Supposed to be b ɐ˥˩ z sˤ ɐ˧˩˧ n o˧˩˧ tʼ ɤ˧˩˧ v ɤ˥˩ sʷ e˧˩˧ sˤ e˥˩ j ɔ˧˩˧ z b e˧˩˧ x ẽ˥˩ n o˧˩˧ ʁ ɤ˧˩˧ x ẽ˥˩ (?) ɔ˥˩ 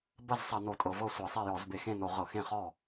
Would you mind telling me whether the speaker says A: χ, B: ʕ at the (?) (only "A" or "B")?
A